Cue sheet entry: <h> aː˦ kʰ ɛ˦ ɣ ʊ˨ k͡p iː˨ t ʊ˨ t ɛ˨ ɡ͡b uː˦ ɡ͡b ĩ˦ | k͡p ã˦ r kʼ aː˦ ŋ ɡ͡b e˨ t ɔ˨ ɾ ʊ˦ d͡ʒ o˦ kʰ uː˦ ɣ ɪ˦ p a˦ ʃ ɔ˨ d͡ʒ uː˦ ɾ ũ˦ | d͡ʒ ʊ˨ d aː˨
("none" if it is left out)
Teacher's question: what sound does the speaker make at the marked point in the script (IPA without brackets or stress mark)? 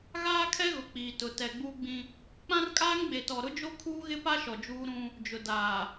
ɣ